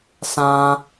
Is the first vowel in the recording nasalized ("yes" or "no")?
yes